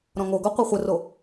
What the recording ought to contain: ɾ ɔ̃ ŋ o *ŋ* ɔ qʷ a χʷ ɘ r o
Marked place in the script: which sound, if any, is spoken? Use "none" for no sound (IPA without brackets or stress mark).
ɡ